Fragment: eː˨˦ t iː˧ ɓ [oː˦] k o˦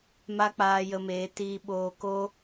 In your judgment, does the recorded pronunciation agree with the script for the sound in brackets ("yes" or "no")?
no